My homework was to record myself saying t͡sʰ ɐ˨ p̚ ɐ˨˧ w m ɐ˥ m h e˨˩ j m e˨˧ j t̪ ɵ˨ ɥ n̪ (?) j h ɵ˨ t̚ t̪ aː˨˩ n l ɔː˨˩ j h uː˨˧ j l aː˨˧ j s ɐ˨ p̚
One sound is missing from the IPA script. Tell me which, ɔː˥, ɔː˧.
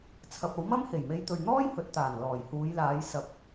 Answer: ɔː˥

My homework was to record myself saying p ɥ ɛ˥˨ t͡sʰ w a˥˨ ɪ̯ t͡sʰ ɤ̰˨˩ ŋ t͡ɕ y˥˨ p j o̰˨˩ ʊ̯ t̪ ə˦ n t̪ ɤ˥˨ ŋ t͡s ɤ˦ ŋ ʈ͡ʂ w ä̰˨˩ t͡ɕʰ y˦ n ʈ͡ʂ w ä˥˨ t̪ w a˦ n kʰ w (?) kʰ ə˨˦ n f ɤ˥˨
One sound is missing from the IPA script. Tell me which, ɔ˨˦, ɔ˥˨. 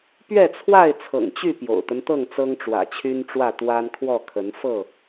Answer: ɔ˥˨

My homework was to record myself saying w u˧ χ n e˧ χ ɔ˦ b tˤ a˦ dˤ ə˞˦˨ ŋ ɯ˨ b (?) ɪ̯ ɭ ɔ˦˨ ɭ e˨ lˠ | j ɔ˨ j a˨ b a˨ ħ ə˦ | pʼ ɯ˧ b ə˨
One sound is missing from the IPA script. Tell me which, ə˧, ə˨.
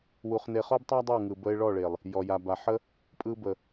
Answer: ə˧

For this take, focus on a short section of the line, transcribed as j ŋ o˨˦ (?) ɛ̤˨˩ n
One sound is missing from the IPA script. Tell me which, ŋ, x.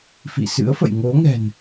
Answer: ŋ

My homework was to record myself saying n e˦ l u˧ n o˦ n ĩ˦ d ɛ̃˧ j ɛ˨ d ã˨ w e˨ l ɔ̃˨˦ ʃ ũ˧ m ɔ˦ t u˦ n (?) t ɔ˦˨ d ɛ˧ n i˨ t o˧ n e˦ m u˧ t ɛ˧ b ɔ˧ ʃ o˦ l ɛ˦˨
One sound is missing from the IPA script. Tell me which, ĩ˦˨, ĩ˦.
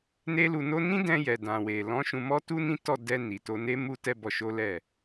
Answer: ĩ˦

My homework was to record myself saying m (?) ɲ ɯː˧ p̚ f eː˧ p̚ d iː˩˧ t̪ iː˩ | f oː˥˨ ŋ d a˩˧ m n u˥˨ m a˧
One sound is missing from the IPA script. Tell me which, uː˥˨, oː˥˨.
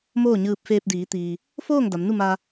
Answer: oː˥˨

